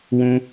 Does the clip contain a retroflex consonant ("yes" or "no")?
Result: no